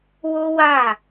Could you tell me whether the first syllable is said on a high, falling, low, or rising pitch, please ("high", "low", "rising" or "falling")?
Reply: high